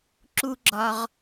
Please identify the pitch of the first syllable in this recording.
low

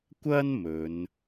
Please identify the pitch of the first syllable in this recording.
high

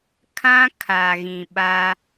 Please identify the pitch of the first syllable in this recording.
high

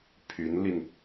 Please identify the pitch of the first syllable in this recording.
rising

